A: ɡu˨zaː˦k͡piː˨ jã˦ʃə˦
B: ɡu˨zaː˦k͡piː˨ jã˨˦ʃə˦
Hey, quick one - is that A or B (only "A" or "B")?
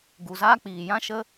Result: A